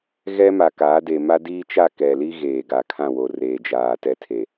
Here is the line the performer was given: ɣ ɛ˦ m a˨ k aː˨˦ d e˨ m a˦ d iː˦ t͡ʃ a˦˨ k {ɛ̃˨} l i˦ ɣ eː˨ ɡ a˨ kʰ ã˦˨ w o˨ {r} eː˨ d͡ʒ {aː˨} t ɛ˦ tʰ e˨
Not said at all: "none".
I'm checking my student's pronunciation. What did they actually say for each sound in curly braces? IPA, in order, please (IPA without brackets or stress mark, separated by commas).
ɛ˨, r, aː˨